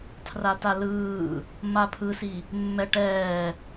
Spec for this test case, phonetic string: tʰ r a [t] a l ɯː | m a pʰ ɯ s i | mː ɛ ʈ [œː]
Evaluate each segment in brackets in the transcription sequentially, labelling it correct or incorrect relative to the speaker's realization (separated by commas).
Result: correct, incorrect